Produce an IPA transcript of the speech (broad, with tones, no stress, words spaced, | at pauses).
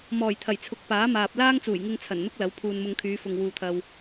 mɔː˨˩jt̪ʰɐ˨˩jt͡sʰʊ˨˥k̚ paː˨˥maː˨p̚ laː˥ŋt͡suː˨˩j ŋɪ˧ŋt͡sʰɐ˨˩n n̪ʊ˥k̚lɐ˨˥w pʰuː˨nmʊ˧ŋkʰyː˨˧ fʊ˨ŋ wuː˨t̪ʰɐ˨w